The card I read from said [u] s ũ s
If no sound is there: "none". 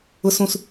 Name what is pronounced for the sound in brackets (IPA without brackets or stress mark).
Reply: ʊ